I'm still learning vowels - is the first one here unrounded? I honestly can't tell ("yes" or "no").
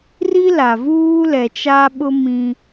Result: yes